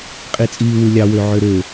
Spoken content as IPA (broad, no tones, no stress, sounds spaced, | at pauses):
qʼ i t͡sʼ iː w ɯ lʲ ɑ w ø ʕ ø ɾ ø